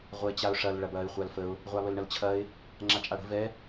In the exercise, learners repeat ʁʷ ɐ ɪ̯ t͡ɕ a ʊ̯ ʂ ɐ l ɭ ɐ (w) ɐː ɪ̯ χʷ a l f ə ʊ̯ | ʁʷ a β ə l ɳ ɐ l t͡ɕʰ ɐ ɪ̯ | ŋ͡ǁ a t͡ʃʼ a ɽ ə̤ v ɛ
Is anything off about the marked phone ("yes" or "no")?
yes